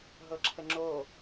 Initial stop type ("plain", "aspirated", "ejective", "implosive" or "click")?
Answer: click